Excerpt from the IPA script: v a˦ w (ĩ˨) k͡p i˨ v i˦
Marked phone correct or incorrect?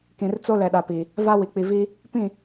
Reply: incorrect